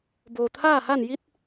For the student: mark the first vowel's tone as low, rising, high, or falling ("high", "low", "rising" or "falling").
low